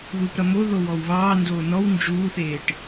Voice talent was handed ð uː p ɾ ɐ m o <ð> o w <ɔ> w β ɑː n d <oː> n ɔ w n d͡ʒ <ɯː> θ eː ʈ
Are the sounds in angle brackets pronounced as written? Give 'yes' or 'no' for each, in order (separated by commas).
yes, yes, yes, no